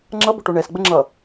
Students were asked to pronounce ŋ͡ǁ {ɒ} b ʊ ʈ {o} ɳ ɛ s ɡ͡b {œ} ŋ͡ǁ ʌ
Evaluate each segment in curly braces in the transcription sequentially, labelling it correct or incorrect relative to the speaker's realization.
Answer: incorrect, correct, incorrect

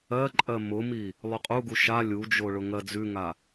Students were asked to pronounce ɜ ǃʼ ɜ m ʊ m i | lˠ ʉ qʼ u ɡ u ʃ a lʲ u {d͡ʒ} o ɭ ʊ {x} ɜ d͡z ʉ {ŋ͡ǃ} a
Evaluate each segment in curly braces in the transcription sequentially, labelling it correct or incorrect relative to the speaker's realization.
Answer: correct, incorrect, incorrect

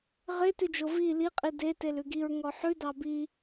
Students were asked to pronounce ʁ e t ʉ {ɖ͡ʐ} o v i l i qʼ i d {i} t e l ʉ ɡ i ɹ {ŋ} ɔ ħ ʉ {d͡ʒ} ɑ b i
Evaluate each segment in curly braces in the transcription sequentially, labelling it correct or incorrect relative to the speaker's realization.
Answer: incorrect, incorrect, correct, incorrect

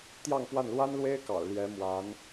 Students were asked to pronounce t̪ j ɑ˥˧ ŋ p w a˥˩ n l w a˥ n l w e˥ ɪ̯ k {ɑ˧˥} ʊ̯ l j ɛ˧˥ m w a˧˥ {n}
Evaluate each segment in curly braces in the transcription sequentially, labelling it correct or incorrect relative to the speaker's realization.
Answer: incorrect, correct

